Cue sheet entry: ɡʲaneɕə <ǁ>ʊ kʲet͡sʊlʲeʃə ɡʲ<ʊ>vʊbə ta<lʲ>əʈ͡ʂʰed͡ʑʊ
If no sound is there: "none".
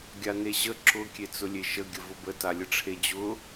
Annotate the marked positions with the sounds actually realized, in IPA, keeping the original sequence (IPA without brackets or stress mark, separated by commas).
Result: ǁ, ə, lʲ